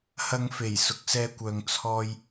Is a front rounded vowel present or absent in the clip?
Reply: present